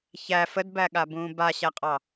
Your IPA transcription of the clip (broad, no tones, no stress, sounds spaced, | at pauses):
ç æ f ə d b æ ɠ a b ũː b a ɕ æ qʼ ɑ